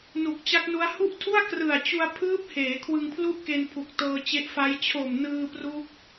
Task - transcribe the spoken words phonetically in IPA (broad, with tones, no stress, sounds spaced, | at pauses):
n u˨˩ k̚ t͡ɕ a˦˥ k̚ n u˦˥ a̯ h u˥˩ ʔ tʰ u˥˩ a̯ k r ɯ˨˩ a̯ t͡ɕ u˧ a̯ pʰ ɯː˦˥ p̚ h eː˩˦ kʰ w ɯ˧ ŋ pʰ l u˥˩ ʔ k e˧ n pʰ u˨˩ k̚ t ɤː˧ t͡ɕ e˦˥ ʔ f a˦˥ j t͡ɕʰ o˨˩ m n ɯː˧ p r u˦˥ k̚